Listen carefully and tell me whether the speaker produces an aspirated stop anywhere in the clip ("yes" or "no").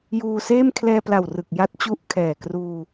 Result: yes